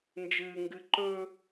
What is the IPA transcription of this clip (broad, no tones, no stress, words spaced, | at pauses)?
nd͡ʒɨːŋɡɨ ǃɵ